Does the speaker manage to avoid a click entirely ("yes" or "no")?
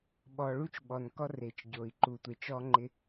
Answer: no